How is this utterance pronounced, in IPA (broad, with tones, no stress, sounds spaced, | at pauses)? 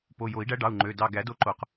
p o˩˧˩ j o˨˩˦ i̯ ɖ æ˧˥ ɖ ɑ˩˧˩ u̯ ŋ͡ǃ ø˩˧˩ d ɑ˦˨ ɡ æ˨˩˦ d o˧˥ ǃ o˨˩˦ q